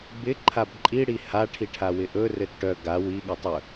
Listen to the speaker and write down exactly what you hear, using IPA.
b ɪ ǃʰ a b ǃʼ i ɽ i h a ʈʰ i ʈʰ a w ɪ ʔ ɵ r ɘ t ʈ œ ɡ a w i ɠ ɘ tˤ ɵ

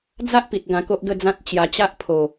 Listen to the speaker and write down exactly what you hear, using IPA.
d͡z a˦ ʔ p i˨ t̚ ɡ ã˧ k o˦ ʔ ɡ ə˥˧ d͡z ã˦ t̚ t͡ɕ j a˧ t͡ɕ a˦ ʔ pʰ o˨˩

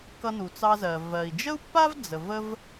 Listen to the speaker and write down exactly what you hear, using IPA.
k ʌ˧ n u˩ t͡s ɑ˧ z ɜ˩ v ɜ˩ i̯ d͡ʒ ə˥ u̯ pː a˥ v d͡z ə˩ v ə˥ v

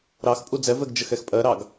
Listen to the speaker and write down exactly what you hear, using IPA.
ɾ ɑ x pʼ u d͡z ɛ v ɛ ɡ d͡ʒ ə x ɛ x pʼ ɜ ɾ ɑ ɡ

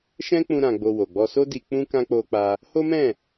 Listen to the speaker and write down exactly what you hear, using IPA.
ʃ ɛ̃˦ k͡p ũ˧ ɾ ã˧ ɡ͡b o˧ w o˨ ɡ͡b ɔ˧ s o˦ d i˧ k͡p ũ˦ k ã˦ k͡p o˦ k͡p a˦ | h o˦ m ɛ̃˦˨

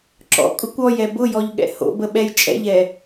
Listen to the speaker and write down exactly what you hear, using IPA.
ǁ ɔ̰ kʼ ʊ kʷ ɔ j ɛ b ʊ j ɔ ʎ ɠ ɛ̰ h o̰ b ə ɓ ɛ j t͡ʃʼ ɛ̰ ʎ ɛ

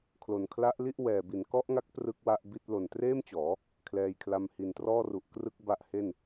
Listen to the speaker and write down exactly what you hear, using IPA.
kʰ l o˨˩ n kʰ l a˦˥ ʔ l i˥˩ ʔ w ɛː˨˩ b i˩˦ n k ɔ˦˥ ʔ ŋ a˦˥ k̚ p r ɯ˦˥ k̚ w a˦˥ ʔ b i˥˩ t̚ l o˨˩ n t r eː˥˩ m t͡ɕ ɔː˩˦ | kʰ l ɛː˧ j kʰ l a˧ m h i˨˩ n t r ɔː˥˩ r u˨˩ ʔ k r ɯ˦˥ k̚ b a˦˥ ʔ h e˥˩ n

